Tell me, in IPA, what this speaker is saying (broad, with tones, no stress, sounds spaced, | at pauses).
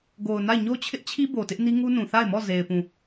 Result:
ɡ o˨ ʊ̯ n a˦˨ ɪ̯ ɲ o˦ t͡ɕʰ ɪ˦ ʔ t͡ɕʰ i˦ b o˨ t ɪ˦ ʔ n i˦ ŋ u˦ n ũ˨ θ a˦˨ ɪ̯ m ɔ˦˨ z e˨ ɪ̯ p ũ˦˨